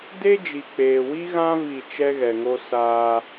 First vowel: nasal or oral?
oral